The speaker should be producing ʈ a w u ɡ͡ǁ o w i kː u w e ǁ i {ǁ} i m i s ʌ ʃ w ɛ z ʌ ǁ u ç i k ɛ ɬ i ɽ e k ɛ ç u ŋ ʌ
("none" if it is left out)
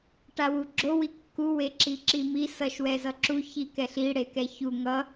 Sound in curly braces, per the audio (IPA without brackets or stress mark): ǁ